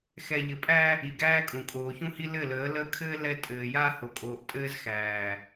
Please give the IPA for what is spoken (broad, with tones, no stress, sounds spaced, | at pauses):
x ɛ˨ ʎ ɘ˨ pʼ æ˦ | i˨ ɡ æː˦ kʼ ũ˨ kʼ oː˨ ç ũ˦ h i˦ l ɘ˦˨ l əː˨˦ l əː˦ kʰ ɘː˦ l ɛ˦ tʼ ɘː˨ j a˦ h o˨ kʼ oː˨ ʔ tʼ ɘː˦ z x æː˨